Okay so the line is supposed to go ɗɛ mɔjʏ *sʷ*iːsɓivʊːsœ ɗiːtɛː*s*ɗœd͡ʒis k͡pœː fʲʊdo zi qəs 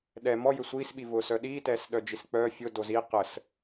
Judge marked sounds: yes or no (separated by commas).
yes, yes